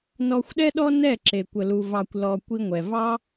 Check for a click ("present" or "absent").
present